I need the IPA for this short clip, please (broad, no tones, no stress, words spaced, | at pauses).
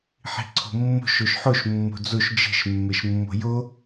ħi̤ǀʰo̤mːo̤ʃ oʃħoʃ mːo̤d͡zoʃ d͡ʒe̤ʃ mːeʃmːo̤jo